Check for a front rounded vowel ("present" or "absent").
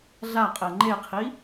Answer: absent